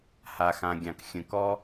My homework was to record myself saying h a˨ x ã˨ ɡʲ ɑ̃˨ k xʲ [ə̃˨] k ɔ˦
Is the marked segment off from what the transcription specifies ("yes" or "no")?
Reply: no